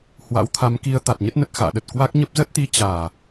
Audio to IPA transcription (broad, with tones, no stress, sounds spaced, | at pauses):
h w a̰˧˥ w t̪ʰ a˨˦ m k i˧ ə̯ t̪ a˨˩ t̚ ɲ ə˦˥ t̚ n ə˨˩ t̚ x a̰ː˧˨ ɗ ə˨˩ t̚ k w a˦˥ k̚ ɲ ə˦˥ p̚ z ə˦˥ t̚ t̪ i˨˦ t͡ɕ aː˨˩